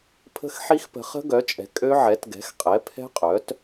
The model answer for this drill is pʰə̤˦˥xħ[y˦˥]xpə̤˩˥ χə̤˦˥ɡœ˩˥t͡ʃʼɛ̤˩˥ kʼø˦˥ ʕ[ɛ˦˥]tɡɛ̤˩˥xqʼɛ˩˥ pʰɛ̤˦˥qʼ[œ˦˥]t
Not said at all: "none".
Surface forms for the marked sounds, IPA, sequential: i˦˥, ɛ˩˥, œ˩˥

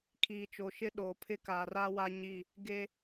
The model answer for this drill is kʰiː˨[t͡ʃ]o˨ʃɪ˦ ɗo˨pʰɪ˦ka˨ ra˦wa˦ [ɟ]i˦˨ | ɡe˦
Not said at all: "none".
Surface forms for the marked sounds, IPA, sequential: t͡ʃ, ɲ

